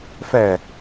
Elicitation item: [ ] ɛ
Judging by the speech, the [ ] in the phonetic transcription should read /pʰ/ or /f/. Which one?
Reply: f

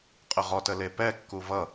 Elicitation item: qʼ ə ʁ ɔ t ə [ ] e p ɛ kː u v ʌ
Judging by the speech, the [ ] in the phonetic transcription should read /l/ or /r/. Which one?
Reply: l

